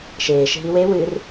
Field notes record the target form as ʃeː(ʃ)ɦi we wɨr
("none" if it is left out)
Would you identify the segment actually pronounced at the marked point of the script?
ʃ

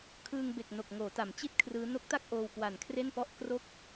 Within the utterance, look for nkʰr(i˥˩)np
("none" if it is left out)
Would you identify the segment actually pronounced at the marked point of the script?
e˥˩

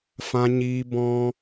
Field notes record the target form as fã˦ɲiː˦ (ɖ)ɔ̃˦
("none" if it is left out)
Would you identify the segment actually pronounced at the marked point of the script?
b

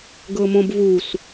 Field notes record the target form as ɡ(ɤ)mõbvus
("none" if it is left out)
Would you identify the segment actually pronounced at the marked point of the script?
ɤ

